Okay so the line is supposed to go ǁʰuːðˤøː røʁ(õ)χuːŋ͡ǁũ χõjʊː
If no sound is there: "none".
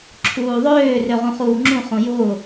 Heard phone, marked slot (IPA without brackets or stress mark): ũ